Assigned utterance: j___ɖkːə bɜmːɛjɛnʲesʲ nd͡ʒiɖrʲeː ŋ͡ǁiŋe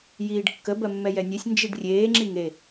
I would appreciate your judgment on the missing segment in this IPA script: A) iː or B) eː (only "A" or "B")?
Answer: A